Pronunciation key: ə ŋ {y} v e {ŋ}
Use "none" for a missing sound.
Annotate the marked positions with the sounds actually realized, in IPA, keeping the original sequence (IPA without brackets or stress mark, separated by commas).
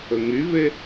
y, none